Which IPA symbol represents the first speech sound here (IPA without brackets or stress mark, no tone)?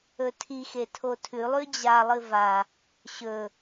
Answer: ɵ